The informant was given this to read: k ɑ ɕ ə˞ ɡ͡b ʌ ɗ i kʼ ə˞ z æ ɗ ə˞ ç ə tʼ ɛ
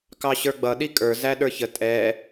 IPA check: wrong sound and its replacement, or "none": none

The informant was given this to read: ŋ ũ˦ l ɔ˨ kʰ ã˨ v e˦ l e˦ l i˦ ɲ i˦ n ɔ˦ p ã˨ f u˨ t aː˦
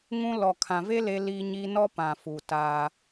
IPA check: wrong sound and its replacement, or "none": none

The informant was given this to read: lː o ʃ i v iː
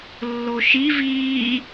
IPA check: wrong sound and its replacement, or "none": none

